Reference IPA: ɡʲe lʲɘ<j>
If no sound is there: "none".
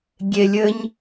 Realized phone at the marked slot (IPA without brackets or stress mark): ɲ